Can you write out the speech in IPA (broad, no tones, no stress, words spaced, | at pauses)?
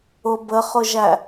ʊ bəχʊʒæ